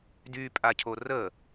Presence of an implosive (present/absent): absent